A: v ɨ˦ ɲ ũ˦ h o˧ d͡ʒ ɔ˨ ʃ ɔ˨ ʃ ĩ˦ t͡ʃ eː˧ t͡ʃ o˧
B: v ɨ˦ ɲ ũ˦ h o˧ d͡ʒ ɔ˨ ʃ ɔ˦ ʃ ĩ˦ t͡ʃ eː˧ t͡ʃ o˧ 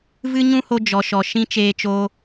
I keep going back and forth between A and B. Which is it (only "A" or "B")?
A